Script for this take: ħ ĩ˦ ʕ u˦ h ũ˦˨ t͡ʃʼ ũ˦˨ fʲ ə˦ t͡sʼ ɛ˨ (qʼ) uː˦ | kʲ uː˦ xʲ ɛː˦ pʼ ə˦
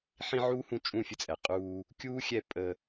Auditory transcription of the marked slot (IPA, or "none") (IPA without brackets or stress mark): qʼ